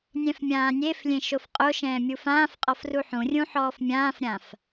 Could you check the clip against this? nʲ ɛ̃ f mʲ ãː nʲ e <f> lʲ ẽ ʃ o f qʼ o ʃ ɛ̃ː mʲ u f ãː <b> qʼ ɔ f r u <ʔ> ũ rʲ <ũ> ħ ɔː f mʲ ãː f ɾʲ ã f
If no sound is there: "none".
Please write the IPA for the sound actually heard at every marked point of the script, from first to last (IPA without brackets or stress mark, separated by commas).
f, f, ħ, ũ